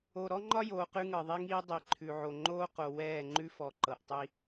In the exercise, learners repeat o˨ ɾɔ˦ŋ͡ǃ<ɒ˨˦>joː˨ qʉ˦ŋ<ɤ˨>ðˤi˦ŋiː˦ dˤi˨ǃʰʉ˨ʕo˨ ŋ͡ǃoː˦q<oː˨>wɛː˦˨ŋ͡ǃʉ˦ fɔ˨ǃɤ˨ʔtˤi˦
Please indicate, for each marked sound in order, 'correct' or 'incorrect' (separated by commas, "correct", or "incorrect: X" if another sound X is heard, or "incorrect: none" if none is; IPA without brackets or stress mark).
incorrect: ɒ˦, correct, incorrect: o˨